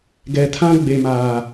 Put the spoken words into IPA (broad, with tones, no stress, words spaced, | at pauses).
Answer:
ɡɛ˨tʰã˦ ɡ͡be˨maː˨